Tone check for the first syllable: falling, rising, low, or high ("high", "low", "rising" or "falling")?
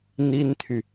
high